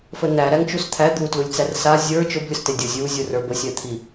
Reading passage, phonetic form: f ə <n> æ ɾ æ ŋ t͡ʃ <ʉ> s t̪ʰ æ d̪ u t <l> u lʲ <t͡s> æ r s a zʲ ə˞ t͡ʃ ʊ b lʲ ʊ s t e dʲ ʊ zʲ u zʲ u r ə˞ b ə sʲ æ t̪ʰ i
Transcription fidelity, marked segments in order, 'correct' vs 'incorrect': correct, incorrect: u, correct, correct

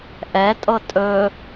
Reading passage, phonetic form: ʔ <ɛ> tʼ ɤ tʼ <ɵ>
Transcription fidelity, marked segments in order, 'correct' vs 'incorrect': correct, correct

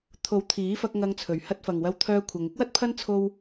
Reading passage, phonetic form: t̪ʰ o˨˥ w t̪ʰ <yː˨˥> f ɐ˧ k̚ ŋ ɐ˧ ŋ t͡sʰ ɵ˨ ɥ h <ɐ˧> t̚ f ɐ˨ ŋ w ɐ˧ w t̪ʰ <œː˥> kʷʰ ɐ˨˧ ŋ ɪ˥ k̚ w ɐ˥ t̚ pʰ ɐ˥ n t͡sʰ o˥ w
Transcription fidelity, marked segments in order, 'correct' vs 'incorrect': incorrect: iː˨˥, correct, incorrect: œː˧

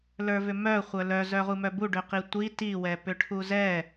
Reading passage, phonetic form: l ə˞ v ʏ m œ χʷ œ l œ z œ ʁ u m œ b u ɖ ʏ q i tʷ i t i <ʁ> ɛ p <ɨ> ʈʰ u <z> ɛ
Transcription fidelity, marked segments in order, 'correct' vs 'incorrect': incorrect: w, incorrect: ʏ, correct

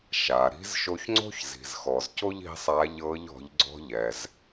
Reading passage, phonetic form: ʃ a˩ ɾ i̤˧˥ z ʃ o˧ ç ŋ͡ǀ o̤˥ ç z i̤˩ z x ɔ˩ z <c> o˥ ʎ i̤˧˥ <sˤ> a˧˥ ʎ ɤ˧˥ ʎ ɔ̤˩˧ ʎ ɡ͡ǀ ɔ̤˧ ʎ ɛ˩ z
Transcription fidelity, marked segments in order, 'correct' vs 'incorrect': correct, correct

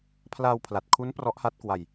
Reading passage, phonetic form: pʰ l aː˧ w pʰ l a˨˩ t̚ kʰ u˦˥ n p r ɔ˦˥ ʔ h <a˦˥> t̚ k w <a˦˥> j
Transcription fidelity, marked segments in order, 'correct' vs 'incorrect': correct, incorrect: a˧

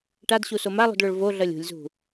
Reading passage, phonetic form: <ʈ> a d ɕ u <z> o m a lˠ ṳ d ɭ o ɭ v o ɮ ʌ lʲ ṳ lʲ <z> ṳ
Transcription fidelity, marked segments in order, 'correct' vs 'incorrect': correct, incorrect: s, correct

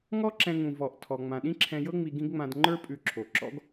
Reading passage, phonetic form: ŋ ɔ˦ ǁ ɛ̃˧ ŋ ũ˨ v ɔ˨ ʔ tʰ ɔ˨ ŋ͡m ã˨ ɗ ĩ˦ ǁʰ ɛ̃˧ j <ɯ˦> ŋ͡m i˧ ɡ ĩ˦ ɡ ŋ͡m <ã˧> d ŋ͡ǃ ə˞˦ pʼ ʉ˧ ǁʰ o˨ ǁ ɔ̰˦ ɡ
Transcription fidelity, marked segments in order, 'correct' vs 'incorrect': incorrect: ɤ˦, correct

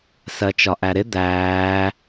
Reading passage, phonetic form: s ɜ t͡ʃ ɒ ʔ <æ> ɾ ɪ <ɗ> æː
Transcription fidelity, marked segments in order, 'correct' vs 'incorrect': correct, incorrect: d̪

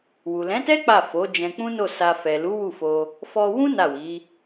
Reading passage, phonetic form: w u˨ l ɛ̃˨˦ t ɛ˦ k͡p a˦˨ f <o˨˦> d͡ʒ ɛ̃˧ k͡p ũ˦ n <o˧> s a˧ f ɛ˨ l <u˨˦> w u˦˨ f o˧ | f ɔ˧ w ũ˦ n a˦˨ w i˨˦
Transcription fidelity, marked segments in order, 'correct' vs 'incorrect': correct, incorrect: o˦˨, correct

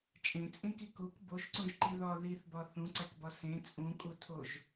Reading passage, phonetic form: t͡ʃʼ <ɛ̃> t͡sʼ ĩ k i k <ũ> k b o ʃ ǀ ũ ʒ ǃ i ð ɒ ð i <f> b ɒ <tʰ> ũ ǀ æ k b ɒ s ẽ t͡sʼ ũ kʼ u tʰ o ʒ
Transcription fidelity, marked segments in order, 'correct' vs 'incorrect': incorrect: ẽ, incorrect: u, incorrect: θ, incorrect: θ

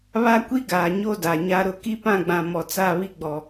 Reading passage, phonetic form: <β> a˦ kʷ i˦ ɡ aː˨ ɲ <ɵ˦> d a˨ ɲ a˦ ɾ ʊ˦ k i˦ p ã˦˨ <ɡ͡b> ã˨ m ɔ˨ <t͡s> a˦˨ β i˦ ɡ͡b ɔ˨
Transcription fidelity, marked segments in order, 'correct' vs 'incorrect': correct, incorrect: o˦, correct, correct

